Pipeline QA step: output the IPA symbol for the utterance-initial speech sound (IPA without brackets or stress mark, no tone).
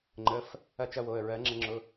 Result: ŋ͡ǃ